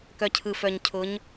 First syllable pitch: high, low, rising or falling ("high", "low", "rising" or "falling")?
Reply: low